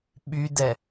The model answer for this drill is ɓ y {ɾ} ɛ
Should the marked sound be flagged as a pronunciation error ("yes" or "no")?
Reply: yes